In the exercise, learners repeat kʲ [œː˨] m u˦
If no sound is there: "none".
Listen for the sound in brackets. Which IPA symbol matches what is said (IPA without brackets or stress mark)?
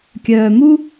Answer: œː˨